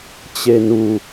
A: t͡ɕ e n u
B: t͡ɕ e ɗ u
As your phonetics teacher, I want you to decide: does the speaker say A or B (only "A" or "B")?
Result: A